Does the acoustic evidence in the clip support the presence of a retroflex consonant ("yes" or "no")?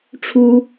yes